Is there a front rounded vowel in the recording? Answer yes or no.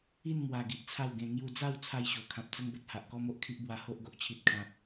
no